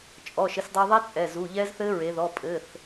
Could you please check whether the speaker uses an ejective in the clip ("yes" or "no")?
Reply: yes